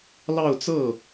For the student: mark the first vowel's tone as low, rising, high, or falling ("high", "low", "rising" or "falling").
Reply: falling